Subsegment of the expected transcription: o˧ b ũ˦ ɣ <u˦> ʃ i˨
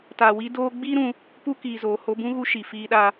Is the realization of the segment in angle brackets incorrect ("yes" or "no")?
yes